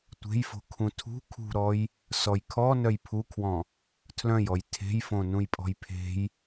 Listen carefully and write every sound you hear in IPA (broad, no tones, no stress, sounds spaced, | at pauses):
tʷ e̤ j f o̤ kʰ ũ tʰ ṳ kʰ ṳ ɾ ɔ j | s ɔ j kʰ ɔ n œ j pʰ u kʰ w ɔ̃ | tʰ l œ̃ j ɔ j tʰ e̤ j f õ n ũ j pʼ ɔ̤ j pʰ e̤ j